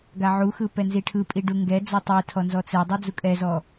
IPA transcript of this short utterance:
ɡ a ʕ u x ɯ p ɛ n z i ʈʰ ɯ pʼ i ɖ u ŋ ɡ ɛ d͡z ɔ tˤ i tʰ ɔ n z ɔ t͡s ɛ dˤ ɯ d͡z u kʼ ɛ z ɔ

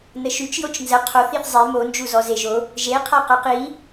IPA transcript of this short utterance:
n ə ʃ y t͡ʃ j o t͡ʃ n z ə qʰ o θ i θ zˤ e m o n d͡ʒ u z ɔ z e ʒ o | ʒ e qʰ a q a q i

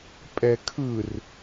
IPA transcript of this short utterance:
pʼ ɛ kʰ ɯ r

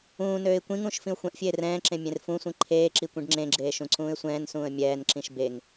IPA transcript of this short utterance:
ũː n øː ɪ̯ kʷ ĩ ŋ ũː ʃ f ĩ ʊ̯ xʷ ɛ̃ ʔ fʲ eː r ɛ̃ː ǁ ẽ mʲ ẽ r f ũ sʷ ĩ ǃʰ eː ǁ i kʷ ĩ ɖ ŋ͡ǁ ẽ ɡ͡ǁ eː ʃ ũ ǀ ũː ɪ̯ sʷ ɛ̃ː n s ũː ə̯ mʲ ɛː n ǁ ĩ ʃ b e ŋ

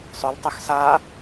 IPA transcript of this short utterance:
sˤ ʏ l tˤ ʏ x s a

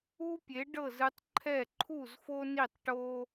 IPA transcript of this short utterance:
u˦ pʲ e˨˦ ɖ ɤ˦˨ z ɯ˧ tˤ ǃʰ ɛ˦˨ ǃʰ u˦˨ z f o˦ n i˦˨ tˤ ʈ o˦

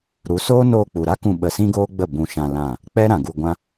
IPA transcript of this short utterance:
ɾ u˨˦ s oː˦ n oː˧ k͡p u˨ ɾ a˦ k ũ˧ ɓ ə˧ s ĩ˦ ɡ oː˦ ɡ͡b ə˦˨ b ũ˧ ʃ ã˧ l ã˦˨ | k͡p ɛ˦ ɾ ã˨ ɡ u˧ ɡʷ ã˦

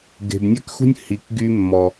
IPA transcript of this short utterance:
ɡ e̤˨ b nʲ ɛ˦ k x ṳ˦ nʲ h i˨ k ɡ y˦ mː ɔ˨

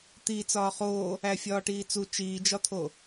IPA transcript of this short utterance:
t̪ i t͡s ɒː χ oː | æ fʲ ɒː ʈ iː t͡s u t͡ʃ iː d͡ʒ ɒ t̪ʰ o

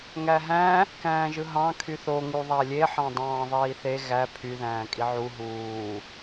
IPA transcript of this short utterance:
ŋ æ ɦ æ̃ | k æ̃ː ʒ ɯ ɦ ɑ̃ kʰ y θ o ŋ u ðˤ æ lʲ e ħ ɑ̃ dˤ ɑ̃ː ðˤ iː θ e ɣ æ pʰ y ð æ̃ː kʼ i ʕ u ɦ uː

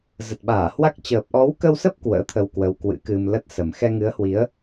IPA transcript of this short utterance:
z ə˨˩ t̚ ɓ aː˧˩ h w a˦˥ k̚ t͡ɕ əː˨˩ p̚ ʔ ɔ˨˦ w k ə˧ w s ə˦˥ p̚ k w ə̰ː˧˥ t̪ʰ ə˧ w k w ə˨˦ w k w ɨ̰˧˥ k ɨ˧ m l ə˦˥ t̚ s ə˨˩ m x ɛ˧ ŋ ɨ˨˦ ə̯ h w i˨˦ ə̯

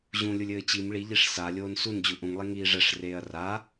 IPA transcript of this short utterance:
ʑ ũ lʲ u lʲ ɘː t͡ɕ i m ɭ i ʎ i ʂ s a lʲ oː n s u n d͡ʑ u ʔ ũ ŋ lˠ i ŋ iː ʐ ɛ ʂ r eː ɐ̯ r a

